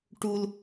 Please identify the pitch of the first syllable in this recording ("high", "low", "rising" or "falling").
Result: low